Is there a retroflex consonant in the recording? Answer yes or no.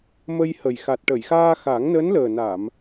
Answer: yes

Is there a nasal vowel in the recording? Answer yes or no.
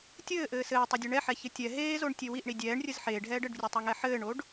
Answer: no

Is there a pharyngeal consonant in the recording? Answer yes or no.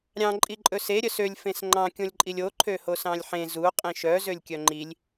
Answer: yes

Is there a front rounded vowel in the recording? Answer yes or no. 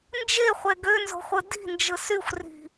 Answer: yes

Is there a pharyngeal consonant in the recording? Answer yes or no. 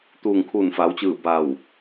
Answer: no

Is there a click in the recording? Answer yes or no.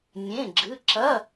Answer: yes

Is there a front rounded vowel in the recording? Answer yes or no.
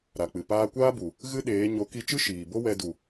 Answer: no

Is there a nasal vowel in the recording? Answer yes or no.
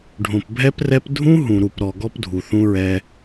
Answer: yes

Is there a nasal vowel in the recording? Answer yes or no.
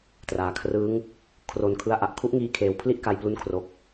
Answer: no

